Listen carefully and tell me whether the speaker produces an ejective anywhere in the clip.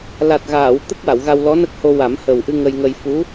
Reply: no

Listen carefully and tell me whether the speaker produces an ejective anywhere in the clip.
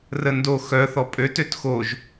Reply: yes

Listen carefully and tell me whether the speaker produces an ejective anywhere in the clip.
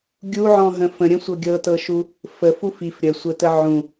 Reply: no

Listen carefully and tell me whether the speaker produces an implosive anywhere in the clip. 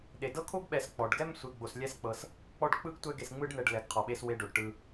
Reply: yes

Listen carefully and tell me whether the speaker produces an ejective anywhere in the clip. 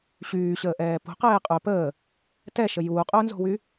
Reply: yes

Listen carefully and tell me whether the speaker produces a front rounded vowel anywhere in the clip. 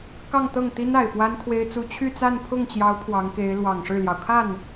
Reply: yes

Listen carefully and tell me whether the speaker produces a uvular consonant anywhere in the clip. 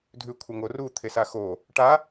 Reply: no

